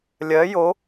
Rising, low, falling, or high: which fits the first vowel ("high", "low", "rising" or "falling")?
rising